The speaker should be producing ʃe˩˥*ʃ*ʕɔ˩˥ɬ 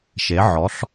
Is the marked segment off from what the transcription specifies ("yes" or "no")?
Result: yes